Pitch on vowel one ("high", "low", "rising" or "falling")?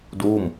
falling